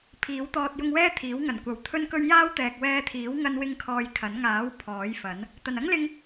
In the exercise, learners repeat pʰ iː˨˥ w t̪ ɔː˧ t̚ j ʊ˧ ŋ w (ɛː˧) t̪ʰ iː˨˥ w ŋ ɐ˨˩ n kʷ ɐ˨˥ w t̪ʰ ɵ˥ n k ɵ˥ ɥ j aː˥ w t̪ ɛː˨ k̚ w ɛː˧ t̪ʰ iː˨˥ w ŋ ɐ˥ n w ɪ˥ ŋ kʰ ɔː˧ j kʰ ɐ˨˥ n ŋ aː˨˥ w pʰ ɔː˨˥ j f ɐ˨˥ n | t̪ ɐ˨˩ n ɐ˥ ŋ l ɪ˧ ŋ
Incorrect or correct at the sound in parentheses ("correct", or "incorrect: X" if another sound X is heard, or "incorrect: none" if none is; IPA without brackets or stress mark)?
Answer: incorrect: ɛː˥